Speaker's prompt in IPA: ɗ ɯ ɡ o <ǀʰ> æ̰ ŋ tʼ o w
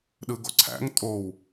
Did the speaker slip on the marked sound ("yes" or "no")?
no